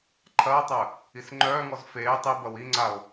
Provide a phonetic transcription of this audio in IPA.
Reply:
ǃʰɐːtˤœ | isŋ͡ǃœːŋɔz feː tˤibɐw iŋ͡ǀao̯

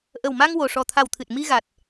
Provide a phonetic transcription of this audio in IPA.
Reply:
ʔə˨˩wma˧ŋ wo˨˩ʂɔ˨˩t̪ʰa˨˩wt̪ʰɨ˨˩t̚ mi˧ɣa˨˩t̚

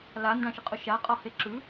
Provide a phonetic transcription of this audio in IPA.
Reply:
landãʃəqʼʊ ʃaqʼɔhe ǁʉ

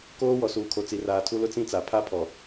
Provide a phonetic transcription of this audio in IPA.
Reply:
koː˦ wɔ˨suː˨kʰo˨ t͡si˨raː˨tʰu˦lʊ˦ t͡sĩ˦t͡sa˨ pʰa˦˨pʰɔ˨

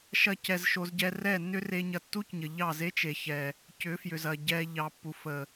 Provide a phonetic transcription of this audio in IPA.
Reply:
ʃɐ˦cɛ˧z ʃo˧zɟɛ˧ rɛ˦˨nːʏ˦re˧ɲɐ˨ tːu˦cɲə˨ ʎɑ˦˨ze˦t͡ʃe˨ çɛ˨ | cʏ˨˦fjʏ˨zɐ˨ ɟɛ˧ ʎɑ˨pːu˨fə˨

